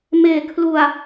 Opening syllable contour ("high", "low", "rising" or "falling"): low